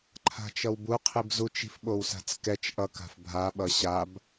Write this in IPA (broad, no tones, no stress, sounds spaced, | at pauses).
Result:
ǃʰ a̤ t͡ʃ ʌ w b u qʰ i b z u t͡ʃ i̤ f ɓ o w s a̤ t͡s k ɛ t͡ʃ ʔ ʌ k a̤ f bʱ a ɓ ʌ ɕ a b